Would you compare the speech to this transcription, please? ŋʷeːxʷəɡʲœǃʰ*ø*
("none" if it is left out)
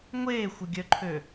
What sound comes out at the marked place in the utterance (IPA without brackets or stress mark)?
ø